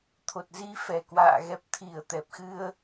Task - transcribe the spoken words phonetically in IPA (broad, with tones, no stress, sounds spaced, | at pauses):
t̪ʰ o˨˩ t̚ z i˧ f ɛ˨˩ k w a̰ː˧˨ ɣ ɛ˨˩ p̚ t̪ʰ i˧˩ ə̯ t̪ ɛ˨˩ p̚ x ɨ˧ ə̯